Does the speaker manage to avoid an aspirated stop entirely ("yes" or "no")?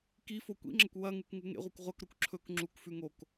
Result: no